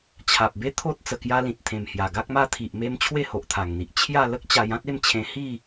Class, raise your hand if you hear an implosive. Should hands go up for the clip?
no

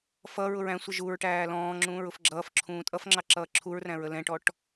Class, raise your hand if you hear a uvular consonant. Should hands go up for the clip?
no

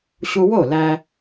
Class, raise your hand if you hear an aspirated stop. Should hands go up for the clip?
no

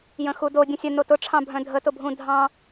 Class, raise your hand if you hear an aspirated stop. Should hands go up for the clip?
yes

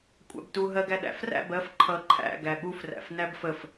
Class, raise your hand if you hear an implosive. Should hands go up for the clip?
yes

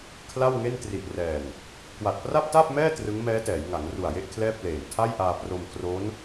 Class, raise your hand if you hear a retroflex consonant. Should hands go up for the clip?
no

